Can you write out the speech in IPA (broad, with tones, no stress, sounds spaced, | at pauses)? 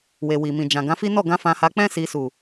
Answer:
w e˨ w i˨ m ĩ˨ d͡ʒ ã˨ ɡ ã˨˦ f i˦ n ɔ˦˨ ɡ ã˨˦ f ã˧ h a˧ k͡p ɛ̃˦ s i˧ s u˨